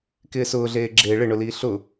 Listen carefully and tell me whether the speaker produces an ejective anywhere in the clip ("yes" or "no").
no